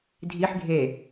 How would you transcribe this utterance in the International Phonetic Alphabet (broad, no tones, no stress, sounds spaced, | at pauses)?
dʱ i ħ ɡʱ e